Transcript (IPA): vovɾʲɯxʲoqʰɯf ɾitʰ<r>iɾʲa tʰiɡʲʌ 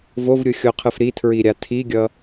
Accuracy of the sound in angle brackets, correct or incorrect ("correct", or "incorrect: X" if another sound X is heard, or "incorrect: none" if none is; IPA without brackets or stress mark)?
incorrect: ɹ